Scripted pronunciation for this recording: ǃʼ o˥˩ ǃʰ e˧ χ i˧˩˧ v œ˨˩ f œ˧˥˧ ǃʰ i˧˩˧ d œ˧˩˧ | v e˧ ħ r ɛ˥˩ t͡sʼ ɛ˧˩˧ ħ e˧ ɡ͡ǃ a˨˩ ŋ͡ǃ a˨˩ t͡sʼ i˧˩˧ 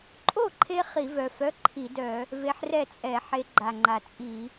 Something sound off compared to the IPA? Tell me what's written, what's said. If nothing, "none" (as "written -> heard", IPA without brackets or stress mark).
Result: none